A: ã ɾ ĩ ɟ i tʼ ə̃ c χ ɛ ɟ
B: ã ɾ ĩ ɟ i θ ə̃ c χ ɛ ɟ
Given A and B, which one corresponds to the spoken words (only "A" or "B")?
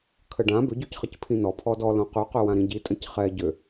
A